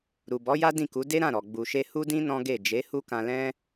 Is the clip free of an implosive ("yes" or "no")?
yes